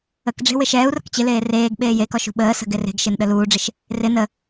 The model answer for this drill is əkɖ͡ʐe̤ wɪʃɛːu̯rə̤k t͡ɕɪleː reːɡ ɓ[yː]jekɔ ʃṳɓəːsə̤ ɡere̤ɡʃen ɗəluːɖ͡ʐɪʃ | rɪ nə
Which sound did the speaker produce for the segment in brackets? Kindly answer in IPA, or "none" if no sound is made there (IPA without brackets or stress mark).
eː